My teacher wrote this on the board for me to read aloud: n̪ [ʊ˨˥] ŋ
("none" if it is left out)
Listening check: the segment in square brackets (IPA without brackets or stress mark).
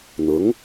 ʊ˨˥